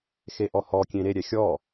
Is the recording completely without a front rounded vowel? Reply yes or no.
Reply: yes